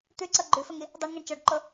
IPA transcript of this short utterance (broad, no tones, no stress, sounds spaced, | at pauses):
t̪ ʉ ǀ ʌ ɡ͡ǃ ʉ f ə ŋ i | dˤ ɛ ɳ ŋ ɛ ɳ t͡ʃ ɔ ɖ ǃ o